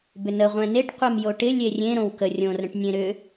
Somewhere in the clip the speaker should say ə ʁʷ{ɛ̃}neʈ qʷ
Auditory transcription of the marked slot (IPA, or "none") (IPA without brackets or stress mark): ɛ̃